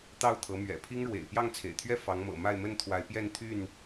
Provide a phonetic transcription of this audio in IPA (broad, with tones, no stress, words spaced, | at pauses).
t̪ɑ˥˨ʊ̯t̪ʰɤ˨˦mɥɛ̰˨˩ pʰi˦ŋɻwḛ˨˩ɪ̯ pjɑ˥˨ŋt͡sʰḛ˨˩ɪ̯t̪ʰɥɛ˥˨ fɑ˨˦ŋmɤ̰˨˩ ma˥˨ɪ̯mə˥˨nt̪ʰwa˨˦ɪ̯pjɛ˥˨n t̪ʰy˥˨n